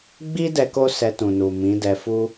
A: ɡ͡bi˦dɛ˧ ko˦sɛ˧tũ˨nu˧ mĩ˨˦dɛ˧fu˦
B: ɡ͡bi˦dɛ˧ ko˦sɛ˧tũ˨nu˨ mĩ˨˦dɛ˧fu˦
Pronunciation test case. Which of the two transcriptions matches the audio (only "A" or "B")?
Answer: B